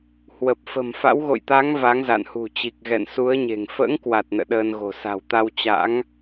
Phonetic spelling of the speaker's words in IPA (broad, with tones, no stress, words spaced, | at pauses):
hwə˨˩p̚ fə̤˨˩mfa̰˧˥w ɣo̰˧˨jt̪a˨˦ŋ va˨˦ŋza̰ː˧˨nhṳ˨˩ t͡ɕi˨˩k̚ɣɛ̰˧˨nsu˨˦ə̯ɲe̤˨˩ŋ fə̰ː˧˥ŋkwa˨˩t̚ nə̰ː˧˨ɗəː˧nɣo̤˨˩ sa̤˨˩wt̪a˧w t͡ɕa̰˧˥ŋ